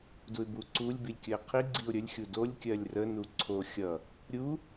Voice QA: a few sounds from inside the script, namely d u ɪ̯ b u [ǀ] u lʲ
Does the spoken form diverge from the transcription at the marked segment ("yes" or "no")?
no